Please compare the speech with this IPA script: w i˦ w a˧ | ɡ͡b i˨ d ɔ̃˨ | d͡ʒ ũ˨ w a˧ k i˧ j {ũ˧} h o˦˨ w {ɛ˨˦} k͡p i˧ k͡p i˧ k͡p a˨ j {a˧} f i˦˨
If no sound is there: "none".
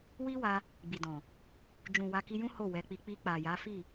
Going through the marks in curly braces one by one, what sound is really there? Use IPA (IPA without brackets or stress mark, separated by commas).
ũ˦, ɛ˨˦, a˨˦